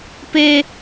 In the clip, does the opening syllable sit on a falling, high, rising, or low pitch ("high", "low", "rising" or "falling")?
low